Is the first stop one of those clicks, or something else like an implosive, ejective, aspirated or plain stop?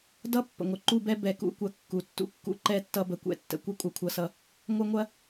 plain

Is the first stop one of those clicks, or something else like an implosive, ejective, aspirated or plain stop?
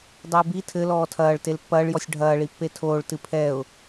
plain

